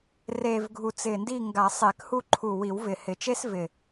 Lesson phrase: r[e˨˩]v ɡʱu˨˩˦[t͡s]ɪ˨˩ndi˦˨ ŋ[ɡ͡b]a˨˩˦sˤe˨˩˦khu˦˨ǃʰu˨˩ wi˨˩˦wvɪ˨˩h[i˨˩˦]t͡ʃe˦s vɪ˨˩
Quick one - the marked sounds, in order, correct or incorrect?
correct, correct, incorrect: ɡ, incorrect: ɪ˨˩˦

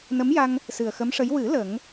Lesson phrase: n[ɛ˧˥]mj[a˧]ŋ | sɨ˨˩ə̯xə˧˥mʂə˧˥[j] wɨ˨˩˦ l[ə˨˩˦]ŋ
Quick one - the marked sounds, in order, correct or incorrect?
incorrect: ə˧˥, correct, correct, correct

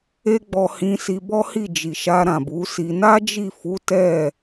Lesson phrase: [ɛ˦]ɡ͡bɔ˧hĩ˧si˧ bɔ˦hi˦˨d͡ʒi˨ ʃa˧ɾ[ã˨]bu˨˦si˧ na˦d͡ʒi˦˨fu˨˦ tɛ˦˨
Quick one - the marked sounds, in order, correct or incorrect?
incorrect: e˦, correct

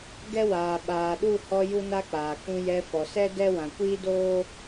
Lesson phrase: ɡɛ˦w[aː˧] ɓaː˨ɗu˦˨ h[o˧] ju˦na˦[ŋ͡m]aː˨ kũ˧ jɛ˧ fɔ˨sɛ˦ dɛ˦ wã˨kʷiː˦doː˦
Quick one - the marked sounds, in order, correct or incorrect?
incorrect: aː˨, incorrect: ɔ˧, incorrect: k͡p

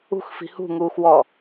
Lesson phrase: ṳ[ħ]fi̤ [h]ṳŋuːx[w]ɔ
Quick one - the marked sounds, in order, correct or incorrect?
incorrect: x, correct, correct

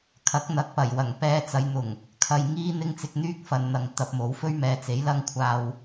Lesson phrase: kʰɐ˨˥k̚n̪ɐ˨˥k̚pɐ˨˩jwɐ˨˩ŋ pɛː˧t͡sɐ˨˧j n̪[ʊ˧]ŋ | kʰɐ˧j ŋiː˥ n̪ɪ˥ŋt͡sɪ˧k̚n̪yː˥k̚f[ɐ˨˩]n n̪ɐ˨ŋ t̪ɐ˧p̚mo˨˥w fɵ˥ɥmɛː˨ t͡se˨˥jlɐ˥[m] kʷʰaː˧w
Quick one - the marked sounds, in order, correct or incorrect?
incorrect: ʊ˨˩, incorrect: ɐ˨, incorrect: ŋ

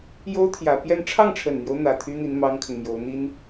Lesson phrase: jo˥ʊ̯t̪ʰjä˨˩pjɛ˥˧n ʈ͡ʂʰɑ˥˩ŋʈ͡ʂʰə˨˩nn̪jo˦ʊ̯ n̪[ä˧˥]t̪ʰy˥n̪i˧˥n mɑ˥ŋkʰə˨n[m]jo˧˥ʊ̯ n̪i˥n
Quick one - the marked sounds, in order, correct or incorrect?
incorrect: ä˨˩, correct

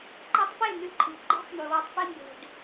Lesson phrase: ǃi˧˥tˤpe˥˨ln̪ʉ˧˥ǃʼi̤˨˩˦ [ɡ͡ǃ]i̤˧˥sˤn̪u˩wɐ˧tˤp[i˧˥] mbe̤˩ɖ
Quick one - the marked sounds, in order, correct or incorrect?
correct, incorrect: i˧

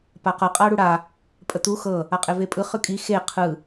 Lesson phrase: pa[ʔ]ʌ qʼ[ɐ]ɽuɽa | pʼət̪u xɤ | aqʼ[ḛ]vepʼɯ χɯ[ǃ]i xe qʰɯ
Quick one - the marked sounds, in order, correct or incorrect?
incorrect: q, incorrect: a, incorrect: e, incorrect: kʼ

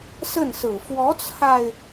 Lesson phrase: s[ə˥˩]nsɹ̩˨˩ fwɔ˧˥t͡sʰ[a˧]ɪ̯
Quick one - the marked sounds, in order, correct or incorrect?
correct, correct

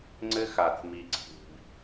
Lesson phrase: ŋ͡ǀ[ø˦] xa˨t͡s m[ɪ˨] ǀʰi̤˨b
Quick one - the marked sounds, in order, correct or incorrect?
incorrect: ɘ˦, incorrect: i˨

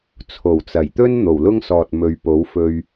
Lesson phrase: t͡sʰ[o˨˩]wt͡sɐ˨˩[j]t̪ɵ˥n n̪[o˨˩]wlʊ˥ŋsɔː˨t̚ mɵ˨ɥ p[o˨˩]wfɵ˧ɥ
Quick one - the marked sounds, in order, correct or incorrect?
correct, correct, correct, incorrect: o˨˥

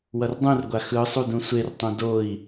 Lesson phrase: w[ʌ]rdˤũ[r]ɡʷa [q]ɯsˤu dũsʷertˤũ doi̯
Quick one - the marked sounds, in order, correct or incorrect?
correct, correct, incorrect: x

